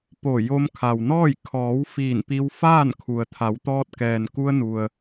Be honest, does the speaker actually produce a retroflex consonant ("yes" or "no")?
no